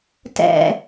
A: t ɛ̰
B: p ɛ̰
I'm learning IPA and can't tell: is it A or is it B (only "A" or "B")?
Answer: A